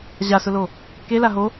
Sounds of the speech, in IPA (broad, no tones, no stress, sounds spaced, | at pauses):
ʑ a s ʊ l o | k e l a ɦ o